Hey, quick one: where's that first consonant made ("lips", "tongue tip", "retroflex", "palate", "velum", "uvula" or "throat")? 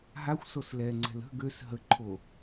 throat